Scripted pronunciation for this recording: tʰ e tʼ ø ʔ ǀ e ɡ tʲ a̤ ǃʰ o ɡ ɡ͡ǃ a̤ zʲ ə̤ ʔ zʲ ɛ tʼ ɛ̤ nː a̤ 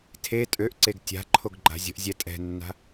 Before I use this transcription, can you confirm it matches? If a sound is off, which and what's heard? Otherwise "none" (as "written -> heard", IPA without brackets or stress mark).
none